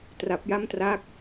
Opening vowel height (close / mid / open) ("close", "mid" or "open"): open